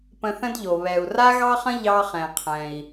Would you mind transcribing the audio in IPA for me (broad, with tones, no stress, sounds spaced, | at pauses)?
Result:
p ə̃˧ θ ə̃˥ d ʎ o˩ β ɛ˩ u̯ r a˥ ɣ ɑ˥ χ ə̃˥ ʎ ɑ˧ χ ɛ̃˩ qʰ ɛ̃˩ i̯